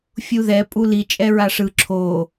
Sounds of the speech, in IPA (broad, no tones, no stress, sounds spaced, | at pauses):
fʲ u ð ɛ pʼ u l i t͡ʃʼ ɛ ɹ a ʂ ɯ ǁʰ o